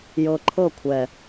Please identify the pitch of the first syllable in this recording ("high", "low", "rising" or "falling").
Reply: low